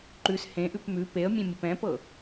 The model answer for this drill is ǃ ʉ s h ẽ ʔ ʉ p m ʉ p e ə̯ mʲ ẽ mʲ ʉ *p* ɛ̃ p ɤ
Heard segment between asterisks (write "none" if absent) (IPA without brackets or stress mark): p